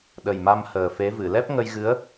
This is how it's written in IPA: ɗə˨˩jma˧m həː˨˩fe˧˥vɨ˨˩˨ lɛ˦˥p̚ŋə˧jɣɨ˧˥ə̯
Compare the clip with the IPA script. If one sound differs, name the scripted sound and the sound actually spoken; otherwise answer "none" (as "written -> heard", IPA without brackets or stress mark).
none